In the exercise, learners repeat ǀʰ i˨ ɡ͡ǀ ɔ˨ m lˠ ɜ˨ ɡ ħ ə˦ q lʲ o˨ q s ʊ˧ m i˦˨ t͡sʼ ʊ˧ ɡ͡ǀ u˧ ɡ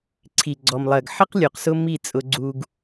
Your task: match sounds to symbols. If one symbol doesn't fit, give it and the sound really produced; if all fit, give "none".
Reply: none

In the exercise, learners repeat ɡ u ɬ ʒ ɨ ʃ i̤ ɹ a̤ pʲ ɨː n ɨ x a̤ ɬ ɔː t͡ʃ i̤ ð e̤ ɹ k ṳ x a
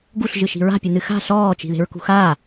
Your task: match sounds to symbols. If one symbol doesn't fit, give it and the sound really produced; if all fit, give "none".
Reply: ɨː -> ɨ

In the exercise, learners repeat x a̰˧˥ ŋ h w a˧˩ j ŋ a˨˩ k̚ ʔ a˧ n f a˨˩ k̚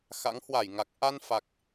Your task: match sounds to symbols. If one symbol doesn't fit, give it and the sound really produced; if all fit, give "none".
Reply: none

